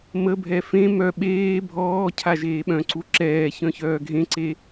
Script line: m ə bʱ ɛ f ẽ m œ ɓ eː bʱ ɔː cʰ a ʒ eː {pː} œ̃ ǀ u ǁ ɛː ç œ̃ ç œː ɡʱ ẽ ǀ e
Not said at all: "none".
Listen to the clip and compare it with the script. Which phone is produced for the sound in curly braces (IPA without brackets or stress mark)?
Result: ɓ